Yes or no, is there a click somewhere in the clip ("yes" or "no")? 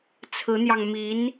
no